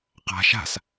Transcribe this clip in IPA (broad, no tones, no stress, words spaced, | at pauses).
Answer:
qa̤ ʃa̤s